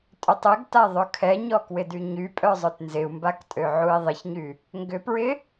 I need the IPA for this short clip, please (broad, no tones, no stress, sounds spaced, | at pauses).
tʼ ʏ tˤ ɪ ɡ t a ðˤ ʊ kʰ ɛ ɲ ɔ k w ɪ d y ɲ y pʼ œ zˤ œ t n z ɪ u̯ m b a k tʼ ø ʕ u i̯ ðˤ ɪ ç ɲ y | ŋ ɡ ʏ p ɹ ɪ